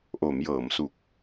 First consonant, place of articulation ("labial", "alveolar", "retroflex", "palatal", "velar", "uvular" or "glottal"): glottal